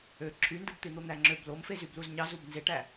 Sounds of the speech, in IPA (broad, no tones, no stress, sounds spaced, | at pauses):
ø ǁʰ y n d ɯ b t̪ i n̪ o n̪ æ ŋ͡ǁ ø b l o m f e z y b l u z ɲ ɑ z u b n z e ʈ æ